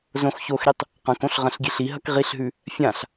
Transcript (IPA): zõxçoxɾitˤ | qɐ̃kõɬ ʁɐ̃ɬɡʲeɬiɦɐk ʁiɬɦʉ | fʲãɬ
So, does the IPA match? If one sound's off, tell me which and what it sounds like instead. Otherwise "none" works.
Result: none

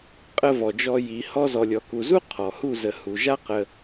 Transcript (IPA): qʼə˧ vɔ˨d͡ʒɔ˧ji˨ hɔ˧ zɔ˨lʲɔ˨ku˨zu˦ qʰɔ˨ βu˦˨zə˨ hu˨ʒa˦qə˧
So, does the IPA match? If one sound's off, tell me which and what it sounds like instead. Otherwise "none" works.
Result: β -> h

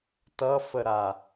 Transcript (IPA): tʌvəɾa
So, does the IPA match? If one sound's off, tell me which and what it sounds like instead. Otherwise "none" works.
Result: v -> f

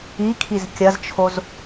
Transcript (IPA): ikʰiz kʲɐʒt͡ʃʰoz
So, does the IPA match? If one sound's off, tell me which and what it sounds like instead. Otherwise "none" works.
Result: ʒ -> z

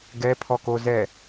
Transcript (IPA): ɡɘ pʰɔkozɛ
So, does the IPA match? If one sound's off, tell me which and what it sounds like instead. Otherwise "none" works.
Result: ɘ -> ɛ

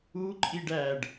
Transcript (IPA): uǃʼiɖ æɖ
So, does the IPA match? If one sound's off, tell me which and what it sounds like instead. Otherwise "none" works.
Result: none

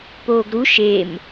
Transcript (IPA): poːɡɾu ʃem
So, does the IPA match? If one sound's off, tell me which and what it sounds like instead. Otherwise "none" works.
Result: none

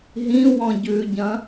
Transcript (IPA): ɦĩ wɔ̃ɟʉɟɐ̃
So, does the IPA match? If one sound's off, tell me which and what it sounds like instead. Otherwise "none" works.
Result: none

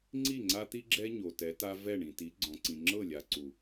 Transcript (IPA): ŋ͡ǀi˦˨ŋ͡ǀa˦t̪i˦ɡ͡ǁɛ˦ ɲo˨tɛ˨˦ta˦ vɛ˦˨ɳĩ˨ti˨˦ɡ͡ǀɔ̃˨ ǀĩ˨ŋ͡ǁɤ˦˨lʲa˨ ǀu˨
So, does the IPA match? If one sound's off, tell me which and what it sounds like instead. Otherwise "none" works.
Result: none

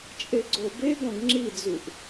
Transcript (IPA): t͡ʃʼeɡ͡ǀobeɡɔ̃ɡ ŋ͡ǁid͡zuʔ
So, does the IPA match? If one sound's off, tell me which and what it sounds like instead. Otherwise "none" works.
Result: none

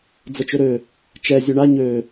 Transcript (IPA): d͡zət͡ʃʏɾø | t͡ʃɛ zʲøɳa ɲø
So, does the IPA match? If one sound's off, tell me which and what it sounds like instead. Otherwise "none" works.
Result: none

